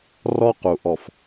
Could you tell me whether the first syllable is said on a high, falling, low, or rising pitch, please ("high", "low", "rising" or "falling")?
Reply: high